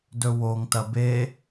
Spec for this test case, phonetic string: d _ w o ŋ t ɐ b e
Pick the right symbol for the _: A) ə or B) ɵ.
B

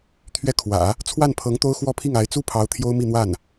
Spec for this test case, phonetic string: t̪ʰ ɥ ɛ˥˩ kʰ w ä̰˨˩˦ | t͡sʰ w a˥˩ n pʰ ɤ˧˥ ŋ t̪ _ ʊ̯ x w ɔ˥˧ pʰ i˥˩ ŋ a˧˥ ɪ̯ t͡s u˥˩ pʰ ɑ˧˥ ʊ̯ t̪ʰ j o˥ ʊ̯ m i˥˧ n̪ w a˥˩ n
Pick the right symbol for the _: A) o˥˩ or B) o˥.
B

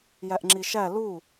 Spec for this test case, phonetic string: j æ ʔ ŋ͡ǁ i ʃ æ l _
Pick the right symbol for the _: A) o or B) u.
B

